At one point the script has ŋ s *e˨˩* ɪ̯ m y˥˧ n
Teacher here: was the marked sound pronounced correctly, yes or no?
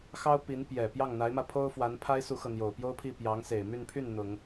yes